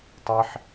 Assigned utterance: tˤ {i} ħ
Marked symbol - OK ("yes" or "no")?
yes